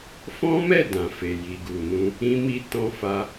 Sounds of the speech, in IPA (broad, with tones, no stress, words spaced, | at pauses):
fɔ̃˦mɛ˦˨ dã˨fe˨ ji˨ɡu˨nũ˧ | ĩ˦mi˦ tɔ̃˧fa˧